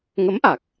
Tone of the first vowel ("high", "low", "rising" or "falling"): rising